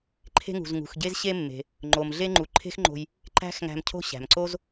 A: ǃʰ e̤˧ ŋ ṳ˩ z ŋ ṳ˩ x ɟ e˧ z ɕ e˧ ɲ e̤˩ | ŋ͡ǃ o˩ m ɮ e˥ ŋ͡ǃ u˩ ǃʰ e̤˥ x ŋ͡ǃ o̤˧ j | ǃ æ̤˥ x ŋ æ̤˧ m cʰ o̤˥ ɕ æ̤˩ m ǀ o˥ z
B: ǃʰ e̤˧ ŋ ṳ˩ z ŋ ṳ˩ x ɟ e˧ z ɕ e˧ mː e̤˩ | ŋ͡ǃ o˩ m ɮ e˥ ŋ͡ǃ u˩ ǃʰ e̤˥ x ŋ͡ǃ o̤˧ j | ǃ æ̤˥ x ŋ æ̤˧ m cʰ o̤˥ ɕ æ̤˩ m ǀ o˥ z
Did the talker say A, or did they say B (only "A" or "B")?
B